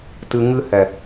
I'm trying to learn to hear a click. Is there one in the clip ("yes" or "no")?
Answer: no